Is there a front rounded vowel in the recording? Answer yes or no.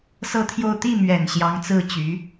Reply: yes